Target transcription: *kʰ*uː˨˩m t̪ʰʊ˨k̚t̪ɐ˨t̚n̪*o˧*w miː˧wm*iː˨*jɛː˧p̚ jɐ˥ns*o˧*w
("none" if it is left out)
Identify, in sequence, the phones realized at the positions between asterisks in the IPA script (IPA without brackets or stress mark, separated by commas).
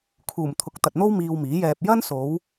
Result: kʰ, o˥, iː˨˥, o˨˧